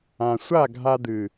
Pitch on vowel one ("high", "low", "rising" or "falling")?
low